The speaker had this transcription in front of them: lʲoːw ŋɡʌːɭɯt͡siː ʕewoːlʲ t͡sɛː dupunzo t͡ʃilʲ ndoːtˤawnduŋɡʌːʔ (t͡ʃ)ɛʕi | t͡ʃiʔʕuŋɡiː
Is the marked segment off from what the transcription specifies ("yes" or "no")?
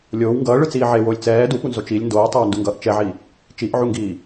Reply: no